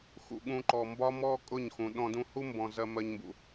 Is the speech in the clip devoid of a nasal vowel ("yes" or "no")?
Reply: no